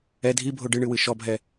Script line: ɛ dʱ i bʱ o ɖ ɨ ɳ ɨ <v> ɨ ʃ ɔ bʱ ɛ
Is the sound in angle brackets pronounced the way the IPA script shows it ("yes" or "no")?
no